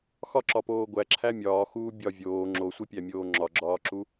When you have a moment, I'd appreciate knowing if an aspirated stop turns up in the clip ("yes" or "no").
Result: yes